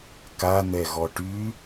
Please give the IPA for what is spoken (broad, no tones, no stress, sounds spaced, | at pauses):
k a n̪ ɛ ɣ ɔ ʈ y